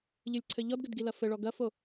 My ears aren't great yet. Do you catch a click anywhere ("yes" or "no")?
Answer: yes